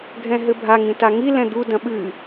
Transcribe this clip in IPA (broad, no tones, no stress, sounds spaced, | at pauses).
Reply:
ɡʱ ɛ̃ ɦ ɘ bʱ a ŋ ĩ t a ŋ i l ɛ̃ d̪ u d ɐ̃ ɓ ɨ